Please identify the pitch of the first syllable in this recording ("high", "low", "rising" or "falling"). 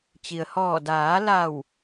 low